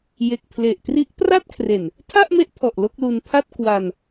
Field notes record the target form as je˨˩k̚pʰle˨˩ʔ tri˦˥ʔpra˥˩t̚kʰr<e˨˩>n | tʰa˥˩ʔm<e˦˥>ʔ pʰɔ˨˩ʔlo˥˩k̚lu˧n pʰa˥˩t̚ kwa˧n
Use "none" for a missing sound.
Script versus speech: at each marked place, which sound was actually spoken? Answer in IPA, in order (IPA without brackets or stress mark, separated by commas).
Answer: e˨˩, e˦˥